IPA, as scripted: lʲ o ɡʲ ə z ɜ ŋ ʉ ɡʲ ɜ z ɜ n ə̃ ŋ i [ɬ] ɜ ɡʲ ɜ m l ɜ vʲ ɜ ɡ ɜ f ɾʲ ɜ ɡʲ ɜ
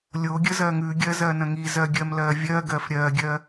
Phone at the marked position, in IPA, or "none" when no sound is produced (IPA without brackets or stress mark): z